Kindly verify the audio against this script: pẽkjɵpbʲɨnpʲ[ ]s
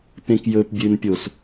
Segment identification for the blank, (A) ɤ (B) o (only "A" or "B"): B